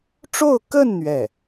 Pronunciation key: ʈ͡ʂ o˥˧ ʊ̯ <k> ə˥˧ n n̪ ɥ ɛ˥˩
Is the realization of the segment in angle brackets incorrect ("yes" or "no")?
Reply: no